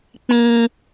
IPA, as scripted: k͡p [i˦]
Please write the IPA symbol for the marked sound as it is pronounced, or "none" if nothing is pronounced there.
ĩ˦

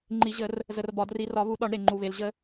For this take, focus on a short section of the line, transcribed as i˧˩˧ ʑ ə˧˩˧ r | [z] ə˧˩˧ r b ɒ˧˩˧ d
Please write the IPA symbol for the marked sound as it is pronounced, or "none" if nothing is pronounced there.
z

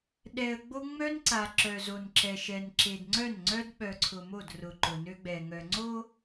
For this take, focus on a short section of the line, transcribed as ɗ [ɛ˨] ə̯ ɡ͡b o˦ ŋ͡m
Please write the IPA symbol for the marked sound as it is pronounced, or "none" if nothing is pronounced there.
ɛ˨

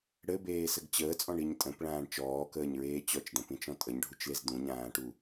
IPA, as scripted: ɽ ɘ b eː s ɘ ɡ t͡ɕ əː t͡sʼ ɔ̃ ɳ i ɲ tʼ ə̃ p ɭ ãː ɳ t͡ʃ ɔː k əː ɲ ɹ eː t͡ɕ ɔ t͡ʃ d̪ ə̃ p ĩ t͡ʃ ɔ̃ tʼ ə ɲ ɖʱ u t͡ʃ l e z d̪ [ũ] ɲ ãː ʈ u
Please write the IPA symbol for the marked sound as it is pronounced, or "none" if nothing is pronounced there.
ũ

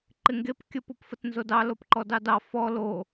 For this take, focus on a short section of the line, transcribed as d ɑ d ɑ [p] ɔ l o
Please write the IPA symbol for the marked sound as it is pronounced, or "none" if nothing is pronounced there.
f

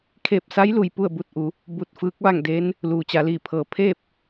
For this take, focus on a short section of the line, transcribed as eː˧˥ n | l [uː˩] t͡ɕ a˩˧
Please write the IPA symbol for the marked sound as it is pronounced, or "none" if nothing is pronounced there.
uː˩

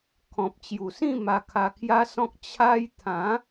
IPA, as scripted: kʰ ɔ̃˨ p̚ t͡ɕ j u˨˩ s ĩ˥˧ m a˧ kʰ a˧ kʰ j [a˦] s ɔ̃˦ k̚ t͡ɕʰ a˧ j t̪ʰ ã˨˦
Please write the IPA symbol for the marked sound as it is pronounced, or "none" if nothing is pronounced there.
a˦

